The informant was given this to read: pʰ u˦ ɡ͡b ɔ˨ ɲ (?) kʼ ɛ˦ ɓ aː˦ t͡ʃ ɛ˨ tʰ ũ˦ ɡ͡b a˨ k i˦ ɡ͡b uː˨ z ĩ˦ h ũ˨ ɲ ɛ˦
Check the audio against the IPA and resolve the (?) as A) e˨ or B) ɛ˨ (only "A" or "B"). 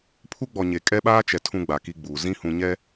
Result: A